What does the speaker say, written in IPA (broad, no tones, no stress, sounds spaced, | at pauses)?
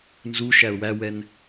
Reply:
n z u ʃ æ ʊ̯ w æ w ɛ n